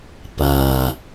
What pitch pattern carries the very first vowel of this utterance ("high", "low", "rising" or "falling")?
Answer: low